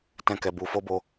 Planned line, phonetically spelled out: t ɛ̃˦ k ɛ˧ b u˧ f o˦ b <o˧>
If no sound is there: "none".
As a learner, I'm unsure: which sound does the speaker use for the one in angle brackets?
o˧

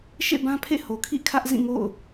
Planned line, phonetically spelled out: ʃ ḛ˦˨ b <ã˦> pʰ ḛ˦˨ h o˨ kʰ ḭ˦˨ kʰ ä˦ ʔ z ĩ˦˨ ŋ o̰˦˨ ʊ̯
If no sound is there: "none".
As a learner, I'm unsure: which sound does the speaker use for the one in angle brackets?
ã˦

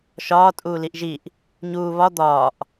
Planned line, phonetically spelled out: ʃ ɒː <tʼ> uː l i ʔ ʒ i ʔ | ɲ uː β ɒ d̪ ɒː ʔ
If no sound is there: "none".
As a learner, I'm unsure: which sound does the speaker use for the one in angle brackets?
tʼ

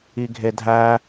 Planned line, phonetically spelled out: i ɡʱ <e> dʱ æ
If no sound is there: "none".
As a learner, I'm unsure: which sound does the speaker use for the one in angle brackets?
e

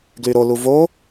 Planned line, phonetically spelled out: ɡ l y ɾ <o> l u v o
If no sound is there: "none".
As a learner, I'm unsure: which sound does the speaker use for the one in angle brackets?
o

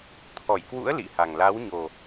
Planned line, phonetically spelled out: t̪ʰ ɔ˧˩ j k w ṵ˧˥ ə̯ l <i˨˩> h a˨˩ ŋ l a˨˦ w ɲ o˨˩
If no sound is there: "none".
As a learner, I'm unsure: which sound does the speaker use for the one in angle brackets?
ḭ˧˨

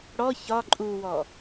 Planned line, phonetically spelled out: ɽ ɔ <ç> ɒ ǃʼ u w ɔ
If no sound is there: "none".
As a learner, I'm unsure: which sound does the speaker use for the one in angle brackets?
ç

